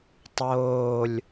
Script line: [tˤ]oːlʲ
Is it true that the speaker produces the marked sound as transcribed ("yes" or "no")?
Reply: yes